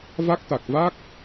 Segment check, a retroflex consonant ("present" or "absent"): absent